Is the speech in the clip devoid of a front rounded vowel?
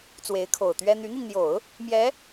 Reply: no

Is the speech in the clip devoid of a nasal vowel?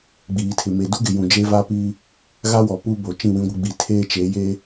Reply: no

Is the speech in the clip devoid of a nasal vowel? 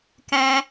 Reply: no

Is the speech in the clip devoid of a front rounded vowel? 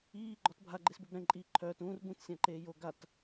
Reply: no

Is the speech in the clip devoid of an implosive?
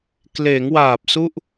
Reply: yes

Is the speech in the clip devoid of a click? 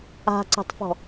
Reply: no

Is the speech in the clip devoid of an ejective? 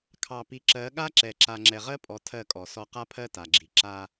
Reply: no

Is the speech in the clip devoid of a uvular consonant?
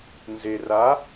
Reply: yes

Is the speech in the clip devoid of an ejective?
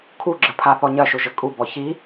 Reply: no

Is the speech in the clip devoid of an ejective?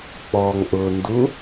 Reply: yes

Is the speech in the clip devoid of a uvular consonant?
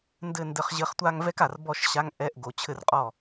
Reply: no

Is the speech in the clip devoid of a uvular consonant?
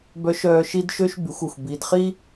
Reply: no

